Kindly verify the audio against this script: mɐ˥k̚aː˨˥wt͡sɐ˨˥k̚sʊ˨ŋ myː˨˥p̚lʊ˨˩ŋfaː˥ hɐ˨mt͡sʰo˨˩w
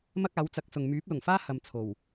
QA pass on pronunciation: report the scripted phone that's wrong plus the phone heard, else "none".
none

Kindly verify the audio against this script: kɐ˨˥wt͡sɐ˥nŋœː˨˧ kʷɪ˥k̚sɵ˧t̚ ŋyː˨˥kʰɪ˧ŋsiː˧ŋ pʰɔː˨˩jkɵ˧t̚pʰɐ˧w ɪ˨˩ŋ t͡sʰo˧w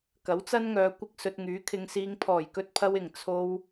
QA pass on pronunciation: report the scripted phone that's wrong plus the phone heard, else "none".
none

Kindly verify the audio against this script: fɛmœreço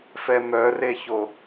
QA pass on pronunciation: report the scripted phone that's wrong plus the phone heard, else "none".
none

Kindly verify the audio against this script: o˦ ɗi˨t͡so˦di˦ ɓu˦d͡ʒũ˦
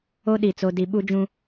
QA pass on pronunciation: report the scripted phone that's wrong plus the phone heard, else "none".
none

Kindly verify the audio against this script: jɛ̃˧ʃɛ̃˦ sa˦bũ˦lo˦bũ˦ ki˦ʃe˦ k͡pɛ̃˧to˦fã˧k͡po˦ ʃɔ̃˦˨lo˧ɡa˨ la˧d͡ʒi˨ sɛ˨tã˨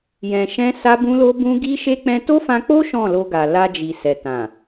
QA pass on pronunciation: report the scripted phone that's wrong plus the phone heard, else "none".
k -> ɡ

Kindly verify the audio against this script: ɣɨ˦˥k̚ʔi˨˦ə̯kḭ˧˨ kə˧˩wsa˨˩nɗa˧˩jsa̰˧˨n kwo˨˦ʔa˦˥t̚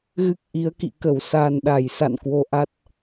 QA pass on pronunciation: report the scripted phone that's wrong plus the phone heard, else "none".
none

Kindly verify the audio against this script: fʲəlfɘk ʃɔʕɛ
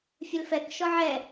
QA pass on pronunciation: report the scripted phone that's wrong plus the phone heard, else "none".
ɘ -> ɛ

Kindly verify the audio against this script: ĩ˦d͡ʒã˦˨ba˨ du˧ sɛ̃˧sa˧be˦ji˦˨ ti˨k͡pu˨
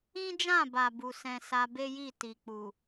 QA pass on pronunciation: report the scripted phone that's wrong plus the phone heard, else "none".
d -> b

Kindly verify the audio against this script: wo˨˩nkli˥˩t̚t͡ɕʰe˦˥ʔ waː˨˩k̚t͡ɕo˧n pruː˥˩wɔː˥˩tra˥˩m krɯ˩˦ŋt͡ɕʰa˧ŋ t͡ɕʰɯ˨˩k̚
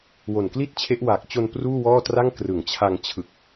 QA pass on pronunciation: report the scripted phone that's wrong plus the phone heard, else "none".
m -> ŋ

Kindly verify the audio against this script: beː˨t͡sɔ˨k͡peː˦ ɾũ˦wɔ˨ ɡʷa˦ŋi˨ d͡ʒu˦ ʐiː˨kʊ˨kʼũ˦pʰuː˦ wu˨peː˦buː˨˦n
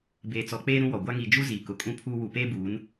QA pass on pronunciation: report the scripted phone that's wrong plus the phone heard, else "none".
ʐ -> z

